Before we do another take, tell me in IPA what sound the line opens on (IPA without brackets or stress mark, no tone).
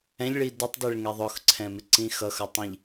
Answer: ɛ̃